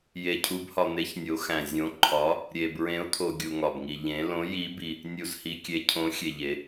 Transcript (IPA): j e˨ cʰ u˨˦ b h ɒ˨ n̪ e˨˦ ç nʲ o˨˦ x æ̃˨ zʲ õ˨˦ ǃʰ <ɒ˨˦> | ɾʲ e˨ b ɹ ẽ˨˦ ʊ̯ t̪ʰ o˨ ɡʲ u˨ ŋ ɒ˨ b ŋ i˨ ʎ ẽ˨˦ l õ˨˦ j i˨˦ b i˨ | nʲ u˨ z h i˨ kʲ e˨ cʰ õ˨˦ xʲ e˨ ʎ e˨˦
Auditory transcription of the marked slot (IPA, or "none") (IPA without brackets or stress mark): ɒ˨˦